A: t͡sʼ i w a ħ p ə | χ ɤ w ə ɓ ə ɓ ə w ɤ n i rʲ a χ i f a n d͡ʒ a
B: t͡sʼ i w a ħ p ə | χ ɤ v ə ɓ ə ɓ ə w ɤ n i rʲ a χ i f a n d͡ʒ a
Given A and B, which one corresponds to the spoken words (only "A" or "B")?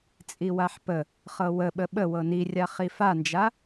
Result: A